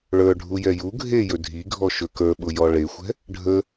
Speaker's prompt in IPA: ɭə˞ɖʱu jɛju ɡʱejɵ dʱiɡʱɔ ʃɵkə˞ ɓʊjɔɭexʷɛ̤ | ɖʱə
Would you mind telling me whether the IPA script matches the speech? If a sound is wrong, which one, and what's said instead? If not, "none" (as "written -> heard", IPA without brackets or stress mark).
none